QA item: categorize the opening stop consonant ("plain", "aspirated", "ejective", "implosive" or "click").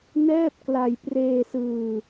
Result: plain